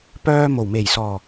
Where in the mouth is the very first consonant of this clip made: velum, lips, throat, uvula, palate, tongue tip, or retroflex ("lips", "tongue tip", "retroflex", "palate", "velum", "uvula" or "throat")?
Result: lips